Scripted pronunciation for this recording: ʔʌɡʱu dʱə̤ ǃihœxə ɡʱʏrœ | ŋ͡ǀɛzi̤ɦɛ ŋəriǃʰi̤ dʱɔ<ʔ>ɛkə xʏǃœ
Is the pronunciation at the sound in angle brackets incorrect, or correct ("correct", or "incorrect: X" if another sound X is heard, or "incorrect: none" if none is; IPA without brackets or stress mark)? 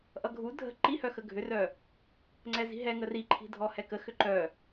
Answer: incorrect: h